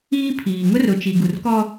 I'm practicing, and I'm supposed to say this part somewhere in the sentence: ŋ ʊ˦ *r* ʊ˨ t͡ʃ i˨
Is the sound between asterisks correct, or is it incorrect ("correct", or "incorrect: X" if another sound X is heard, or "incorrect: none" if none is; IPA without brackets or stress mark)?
correct